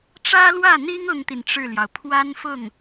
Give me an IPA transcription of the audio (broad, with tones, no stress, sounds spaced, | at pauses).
ʈ͡ʂ ä˥ l w ä˥˩ n̪ i˥ ŋ ʊ˥ ŋ t̪ i˨ n ʈ͡ʂ ɻ̩˥˩ l j ɑ˩ ʊ̯ pʰ w a˥ n f ʊ˥˩ ŋ